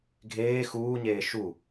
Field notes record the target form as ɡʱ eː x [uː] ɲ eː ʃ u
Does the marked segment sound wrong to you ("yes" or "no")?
no